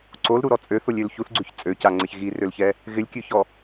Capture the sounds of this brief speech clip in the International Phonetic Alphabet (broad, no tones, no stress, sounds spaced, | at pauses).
ǀ o l ɾ u ɾ ɔ t͡sʼ ø θ o lʲ ø l ç u θ ɡ͡ǀ ʉ ç t͡sʼ ø c a ŋ͡ǀ ɪ ç ɣ i r ø l ç ɛ | ɣ ɪ lʲ kʲ ʉ ç ɔ